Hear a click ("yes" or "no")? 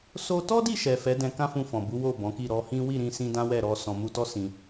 no